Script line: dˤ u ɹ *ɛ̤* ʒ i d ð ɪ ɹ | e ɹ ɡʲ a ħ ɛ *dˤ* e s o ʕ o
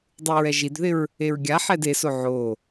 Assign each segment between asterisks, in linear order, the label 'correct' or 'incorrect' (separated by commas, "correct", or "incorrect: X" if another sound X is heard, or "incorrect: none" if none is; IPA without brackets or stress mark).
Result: incorrect: ɛ, incorrect: d